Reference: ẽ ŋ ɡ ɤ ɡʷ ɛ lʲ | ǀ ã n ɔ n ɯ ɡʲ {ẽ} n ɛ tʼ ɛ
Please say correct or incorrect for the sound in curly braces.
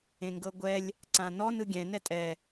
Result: incorrect